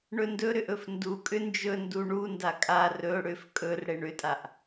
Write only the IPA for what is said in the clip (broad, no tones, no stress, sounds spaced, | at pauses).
ɳ ɵ n d ɵ ɾ ʏ ʔ ɵ f n d u kʼ ʏ n d͡ʒ ɵ n d u ɳ u n d a kʼ a r ɵ ɽ ʏ f kʼ ɵ r ɽ e ɳ ʏ tʼ a ʔ